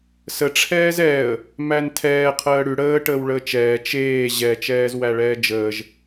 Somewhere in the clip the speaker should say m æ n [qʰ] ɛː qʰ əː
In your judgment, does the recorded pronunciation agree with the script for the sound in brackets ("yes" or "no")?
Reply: no